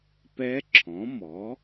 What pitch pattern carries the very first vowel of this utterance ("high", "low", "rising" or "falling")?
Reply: rising